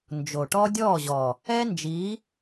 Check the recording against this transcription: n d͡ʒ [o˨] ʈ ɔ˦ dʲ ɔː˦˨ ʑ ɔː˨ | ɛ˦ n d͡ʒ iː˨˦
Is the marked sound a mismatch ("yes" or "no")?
no